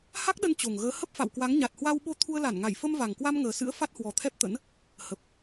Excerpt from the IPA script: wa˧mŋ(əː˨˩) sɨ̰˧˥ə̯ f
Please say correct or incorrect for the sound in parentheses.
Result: correct